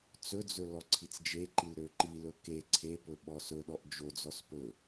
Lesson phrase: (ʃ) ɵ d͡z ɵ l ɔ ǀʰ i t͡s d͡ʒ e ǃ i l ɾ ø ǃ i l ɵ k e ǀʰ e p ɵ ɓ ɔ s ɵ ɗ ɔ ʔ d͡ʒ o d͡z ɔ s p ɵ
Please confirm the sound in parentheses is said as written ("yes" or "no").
no